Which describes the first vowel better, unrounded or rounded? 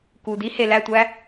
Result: rounded